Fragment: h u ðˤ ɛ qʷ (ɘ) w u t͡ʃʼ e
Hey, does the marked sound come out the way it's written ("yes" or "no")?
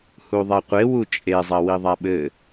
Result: no